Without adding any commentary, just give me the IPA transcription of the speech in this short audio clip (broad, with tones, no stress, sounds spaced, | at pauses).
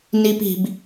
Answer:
n i˦ p i̤˧ b